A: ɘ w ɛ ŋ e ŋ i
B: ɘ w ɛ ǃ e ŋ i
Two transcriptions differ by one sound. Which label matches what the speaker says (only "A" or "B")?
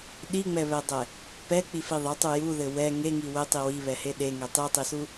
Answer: A